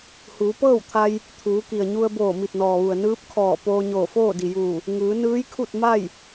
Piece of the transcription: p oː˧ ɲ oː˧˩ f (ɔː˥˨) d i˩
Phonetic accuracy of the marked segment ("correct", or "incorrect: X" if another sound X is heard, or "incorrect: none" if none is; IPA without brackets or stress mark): incorrect: oː˥˨